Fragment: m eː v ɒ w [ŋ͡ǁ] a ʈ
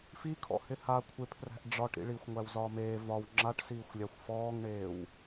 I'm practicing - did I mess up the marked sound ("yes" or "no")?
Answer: no